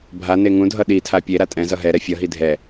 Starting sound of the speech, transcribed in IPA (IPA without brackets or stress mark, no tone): bʱ